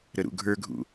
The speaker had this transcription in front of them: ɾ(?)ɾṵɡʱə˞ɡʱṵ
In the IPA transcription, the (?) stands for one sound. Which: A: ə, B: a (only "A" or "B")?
A